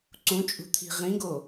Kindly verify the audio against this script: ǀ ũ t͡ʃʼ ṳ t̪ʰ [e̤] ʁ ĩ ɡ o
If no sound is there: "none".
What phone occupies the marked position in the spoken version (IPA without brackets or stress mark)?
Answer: i̤